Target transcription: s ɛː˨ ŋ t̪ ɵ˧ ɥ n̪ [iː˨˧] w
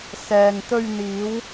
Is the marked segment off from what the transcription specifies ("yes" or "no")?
no